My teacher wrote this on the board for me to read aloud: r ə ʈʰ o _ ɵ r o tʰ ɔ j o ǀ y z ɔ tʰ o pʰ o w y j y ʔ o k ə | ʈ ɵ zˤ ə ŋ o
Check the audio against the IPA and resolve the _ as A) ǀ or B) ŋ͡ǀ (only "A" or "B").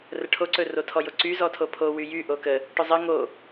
A